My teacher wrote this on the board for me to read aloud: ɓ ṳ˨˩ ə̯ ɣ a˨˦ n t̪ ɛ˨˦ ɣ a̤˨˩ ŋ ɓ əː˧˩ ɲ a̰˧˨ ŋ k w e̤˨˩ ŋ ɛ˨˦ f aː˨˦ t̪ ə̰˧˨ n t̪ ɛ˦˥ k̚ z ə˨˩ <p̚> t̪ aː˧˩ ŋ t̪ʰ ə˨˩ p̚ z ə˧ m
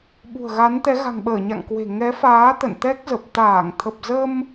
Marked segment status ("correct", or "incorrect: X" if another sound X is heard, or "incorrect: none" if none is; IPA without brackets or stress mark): correct